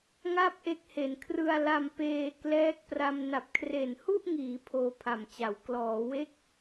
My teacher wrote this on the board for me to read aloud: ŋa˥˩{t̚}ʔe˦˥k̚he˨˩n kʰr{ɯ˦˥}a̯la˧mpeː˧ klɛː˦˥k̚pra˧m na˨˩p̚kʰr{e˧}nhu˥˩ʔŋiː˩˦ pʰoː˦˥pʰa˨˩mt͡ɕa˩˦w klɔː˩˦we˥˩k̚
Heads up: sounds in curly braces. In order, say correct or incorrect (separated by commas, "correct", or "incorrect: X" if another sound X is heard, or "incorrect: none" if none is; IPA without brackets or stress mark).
incorrect: p̚, incorrect: ɯ˧, incorrect: e˨˩